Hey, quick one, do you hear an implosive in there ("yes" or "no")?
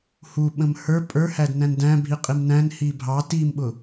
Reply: yes